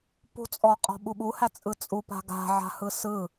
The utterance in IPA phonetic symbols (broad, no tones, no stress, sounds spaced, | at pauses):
p ṳ t͡sʼ ɔ qʼ ɔ̤ ɓ u ɓ u h æ t͡sʼ ɯ t͡sʼ u p a̤ ɡ a̤ ʕ a̤ h ɯ s ɯ